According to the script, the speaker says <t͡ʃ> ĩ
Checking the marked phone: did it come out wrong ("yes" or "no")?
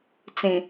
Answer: yes